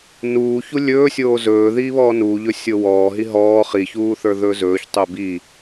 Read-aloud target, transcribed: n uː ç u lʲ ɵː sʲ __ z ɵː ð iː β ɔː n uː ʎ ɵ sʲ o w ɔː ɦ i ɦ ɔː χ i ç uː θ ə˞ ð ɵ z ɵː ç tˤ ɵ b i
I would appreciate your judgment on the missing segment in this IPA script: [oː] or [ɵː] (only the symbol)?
oː